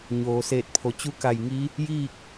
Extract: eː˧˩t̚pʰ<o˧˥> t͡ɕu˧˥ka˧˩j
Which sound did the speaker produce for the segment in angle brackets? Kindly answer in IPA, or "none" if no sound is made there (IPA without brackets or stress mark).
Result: o˩